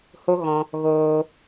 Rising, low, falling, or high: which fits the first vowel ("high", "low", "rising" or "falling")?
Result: high